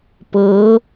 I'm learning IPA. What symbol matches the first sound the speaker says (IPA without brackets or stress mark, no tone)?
p